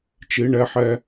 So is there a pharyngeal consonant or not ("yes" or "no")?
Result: yes